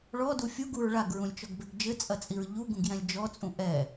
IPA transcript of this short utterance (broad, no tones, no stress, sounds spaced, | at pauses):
ɭ ɔ d u fʲ u ɡ u ɹ ɭ a ɡ ɹ ũ lʲ t͡ʃ ɔ ɡ b e ɡ d͡ʒ ɘ t͡sʼ ɐ t͡sʼ i ɹ ʎ u ɡ ũ ɡ j ɛ̃ lʲ d͡ʒ ɔ t͡sʼ ũ ʔ ɛ